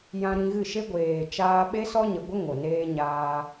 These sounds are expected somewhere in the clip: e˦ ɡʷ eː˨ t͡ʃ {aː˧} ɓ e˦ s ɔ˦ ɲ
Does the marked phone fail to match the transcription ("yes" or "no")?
no